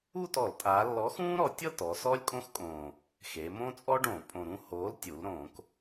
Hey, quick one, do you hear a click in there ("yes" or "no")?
no